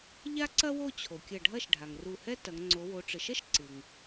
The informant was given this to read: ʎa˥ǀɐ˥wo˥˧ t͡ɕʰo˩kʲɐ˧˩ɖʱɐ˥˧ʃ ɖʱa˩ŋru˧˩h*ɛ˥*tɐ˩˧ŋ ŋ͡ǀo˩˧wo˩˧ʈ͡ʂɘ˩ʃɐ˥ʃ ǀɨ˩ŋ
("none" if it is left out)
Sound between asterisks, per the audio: ɛ˥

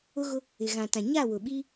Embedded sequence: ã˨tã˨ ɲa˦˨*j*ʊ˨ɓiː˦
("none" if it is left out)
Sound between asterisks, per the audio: w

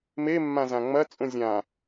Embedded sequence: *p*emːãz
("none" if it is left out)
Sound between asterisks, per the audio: m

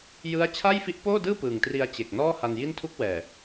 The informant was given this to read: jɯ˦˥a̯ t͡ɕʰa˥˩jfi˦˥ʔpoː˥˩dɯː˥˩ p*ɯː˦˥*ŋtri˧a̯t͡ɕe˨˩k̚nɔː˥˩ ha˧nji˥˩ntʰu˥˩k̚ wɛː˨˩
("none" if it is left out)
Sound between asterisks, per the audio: ɯː˨˩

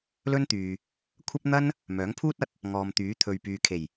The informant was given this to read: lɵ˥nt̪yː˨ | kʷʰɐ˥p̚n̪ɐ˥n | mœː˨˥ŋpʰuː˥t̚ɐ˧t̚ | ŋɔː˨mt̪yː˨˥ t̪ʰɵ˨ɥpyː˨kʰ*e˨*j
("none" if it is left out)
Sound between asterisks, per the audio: e˨˩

